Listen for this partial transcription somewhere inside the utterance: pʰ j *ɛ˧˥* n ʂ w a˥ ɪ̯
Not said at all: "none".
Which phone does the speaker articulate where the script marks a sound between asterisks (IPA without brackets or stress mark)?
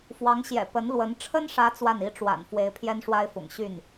ɛ˥